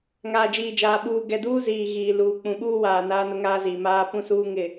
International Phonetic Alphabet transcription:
ŋ aː˨ d͡ʒ iː˨ d͡ʒ aː˨ ɓ uː˨ ɡ ɛ˨ d uː˦ z iː˨ ɣ iː˨ l uː˨ k͡p ũ˨ ɓ uː˦ w aː˨ n aː˦ n ʊ˦ ŋ aː˦ z i˨ m aː˦ p ũ˦ s uː˦ ŋ ɪ˦˨

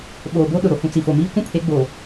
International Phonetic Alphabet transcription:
ɓ oː˨ b o˦ ɗ ʊ˨ ɾ o˨ h ũ˨ t͡s i˨ f o˨ m iː˦ kʷ ũ˦ pʰ e˨˦ ɡ͡b oː˨

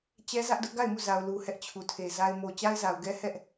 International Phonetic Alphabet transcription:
t͡ɕ ɛ˦ z ä˦ ʔ d ʊ˦ ʔ ɡ a˦˨ ɪ̯ m u˦˨ z a˨ ʊ̯ l u˨ h ɛ˦ ʔ t͡ɕʰ u˨ tʰ e˨ z a˨ ɪ̯ m o˨ t͡ɕ a˦ ɪ̯ z a˨ ʊ̯ ɡ ɛ˦ h ɛ˦ ʔ

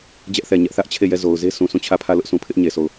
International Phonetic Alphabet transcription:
d͡ʑ ɛ˦ ʔ θ ɛ˨ ɲ ɛ˦ ʔ θ ä˦ ʔ t͡ɕʰ e˦˨ j ɛ˦˨ z o˨ ʊ̯ z e˦ s ũ˨ s ũ˦˨ t͡ɕʰ ä˦˨ pʰ ä˦˨ l ʊ˦ ʔ s ũ˨ pʰ ɪ˦ ʔ ɲ e˨ s o˦˨ ʊ̯

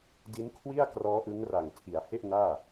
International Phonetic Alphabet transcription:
d i˦˥ n kʰ w i˥˩ a̯ k r ɔː˦˥ ʔ ɯ˦˥ ŋ r a˨˩ ŋ tʰ i˩˦ a̯ h e˥˩ ʔ n aː˥˩

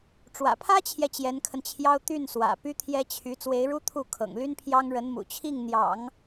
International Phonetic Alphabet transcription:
ʈ͡ʂ w ä̰˨˩ pʰ ä˥ t͡ɕʰ j ɛ˨ t͡ɕ j ɛ˧˥ n kʰ ə˧ n t͡ɕʰ j ɑ˥ ʊ̯ t̪ y˥˩ n s w ä̰˨˩ p y˥ t̪ʰ j ɛ˥ t͡ɕʰ y˧˥ t͡s w e˧˥ ɪ̯ ɻ u˥ t̪ʰ u˥˩ kʰ ɤ̰˨˩ ŋ l y˥ n pʰ j ɑ˥ ŋ ɻ ə˧˥ n m ṵ˨˩ t͡ɕʰ i˥˩ ŋ n̪ j ɑ̰˨˩˦ ŋ

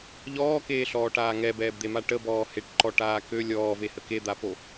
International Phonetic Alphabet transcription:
ʎ ɔː k eː ɬ ɔː ʈ aː ŋ ɛ b ɛː b d̪ e m a ʈ ə b ɔː h e ʈ ǃ ɔ ʈ aː k ø lʲ ɔː v e h ə k e d̪ a p o

